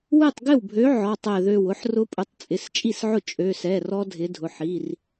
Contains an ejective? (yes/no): yes